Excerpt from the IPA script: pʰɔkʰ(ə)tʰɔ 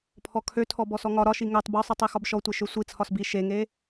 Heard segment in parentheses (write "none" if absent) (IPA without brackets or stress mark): ø